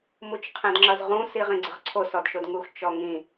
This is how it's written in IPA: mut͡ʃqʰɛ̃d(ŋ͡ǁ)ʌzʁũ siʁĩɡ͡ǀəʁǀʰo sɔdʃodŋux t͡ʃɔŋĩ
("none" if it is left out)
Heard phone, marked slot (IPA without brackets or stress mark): ŋ͡ǁ